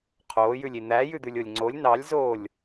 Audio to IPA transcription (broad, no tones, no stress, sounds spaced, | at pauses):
qʰ oː j ʉ lʲ i n̪ æ j ʉ d̪ ʉ lʲ o lʲ ŋ͡ǀ o lʲ n ɑ lʲ z oː lʲ